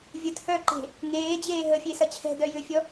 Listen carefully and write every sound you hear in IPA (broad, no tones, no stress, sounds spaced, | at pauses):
vʲ ə t h œː ǃ e̤ | ŋ eː d͡ʑ eː ɦ ə fʲ e s ɐ t͡ɕʰ ɛ̤ d œ j ʏ fʲ ɔ